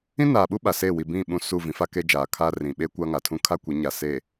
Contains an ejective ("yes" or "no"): no